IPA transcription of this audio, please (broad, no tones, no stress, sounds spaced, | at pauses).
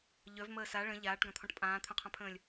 ʎ œ v m əː s a ɭ ə̃ ʎ aː ʈ ɡ ã t̪ʰ ɔ̃ ʈ pʼ ãː t̪ʰ œ̃ qʰ ã pʰ ə̃ː lʲ